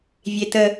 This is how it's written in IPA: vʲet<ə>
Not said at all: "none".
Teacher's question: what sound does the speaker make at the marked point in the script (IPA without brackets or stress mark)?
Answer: ə